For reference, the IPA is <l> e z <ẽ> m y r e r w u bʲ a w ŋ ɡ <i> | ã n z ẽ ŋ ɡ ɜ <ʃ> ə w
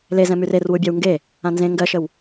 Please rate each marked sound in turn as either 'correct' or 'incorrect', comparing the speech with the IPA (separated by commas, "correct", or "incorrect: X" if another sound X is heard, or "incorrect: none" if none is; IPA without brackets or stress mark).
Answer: correct, incorrect: ɛ̃, incorrect: e, correct